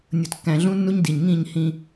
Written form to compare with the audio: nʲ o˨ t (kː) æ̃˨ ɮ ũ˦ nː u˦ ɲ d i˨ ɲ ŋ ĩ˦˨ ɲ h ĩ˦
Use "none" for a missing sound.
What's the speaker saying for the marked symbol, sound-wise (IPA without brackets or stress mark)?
kː